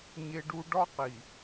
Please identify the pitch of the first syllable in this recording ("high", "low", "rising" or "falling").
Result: high